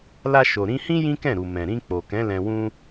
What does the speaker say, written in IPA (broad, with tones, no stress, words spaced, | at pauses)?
la˧ ʃo˨ɾĩ˧hĩ˦ jĩ˦kɛ̃˦˨ɾu˨ mɛ̃˨ɾĩ˧ k͡po˨kɛ̃˨˦ lɛ̃˧wũ˦